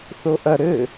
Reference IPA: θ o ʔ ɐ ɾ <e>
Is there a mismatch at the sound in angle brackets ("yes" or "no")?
yes